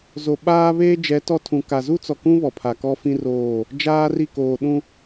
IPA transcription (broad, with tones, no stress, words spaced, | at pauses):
zo˨ɓaː˦ βeː˦d͡ʒɛ˨˦ tɔ˦tʰũ˨ ka˨zu˦t͡sɔ˨kũ˦ βɔ˨pʰa˨kɔ˦fĩ˦ roː˦˨ | d͡ʒaː˦ri˦˨ koː˨ɗũ˦